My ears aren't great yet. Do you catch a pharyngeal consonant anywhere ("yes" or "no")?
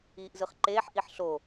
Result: yes